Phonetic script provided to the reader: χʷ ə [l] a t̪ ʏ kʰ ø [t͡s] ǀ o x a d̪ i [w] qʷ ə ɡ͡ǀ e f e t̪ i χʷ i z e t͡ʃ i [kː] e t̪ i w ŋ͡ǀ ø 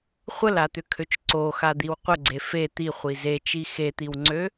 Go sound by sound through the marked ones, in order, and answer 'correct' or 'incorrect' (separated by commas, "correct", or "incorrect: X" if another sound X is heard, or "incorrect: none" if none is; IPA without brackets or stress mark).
correct, incorrect: t͡ʃ, correct, incorrect: x